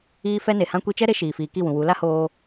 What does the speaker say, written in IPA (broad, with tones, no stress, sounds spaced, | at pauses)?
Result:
iː˦ f ɛ˧ n e˨ h ã˧ kʷ i˧ t͡ʃ ɛ˦ ɾ e˧ ʃ iː˨ f iː˨ k i˦˨ w ũ˨ w u˨˦ l a˦ h oː˧